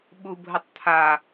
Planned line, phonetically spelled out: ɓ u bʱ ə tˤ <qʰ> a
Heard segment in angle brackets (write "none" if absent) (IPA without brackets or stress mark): t̪ʰ